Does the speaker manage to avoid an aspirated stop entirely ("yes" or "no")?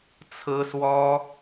no